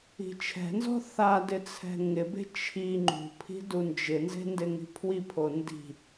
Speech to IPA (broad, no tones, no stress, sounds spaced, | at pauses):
i̤ t͡ʃʰ ɛ̤ n z ɔ̤ θ a d ɪ t͡sʰ ɛ̤ ŋ ɪ b e̤ t͡ʃʰ i ŋ͡ǃ ṳ pʰ i̤ d u n d͡ʒ ɪ n z e̤ n d ɪ ŋ i̤ pʰ w i pʰ o n d i̤